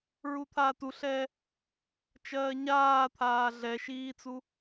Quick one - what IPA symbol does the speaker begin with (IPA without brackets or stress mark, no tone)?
ɹ